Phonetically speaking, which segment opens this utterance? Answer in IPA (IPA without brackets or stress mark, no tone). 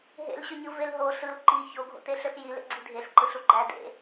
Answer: ɦ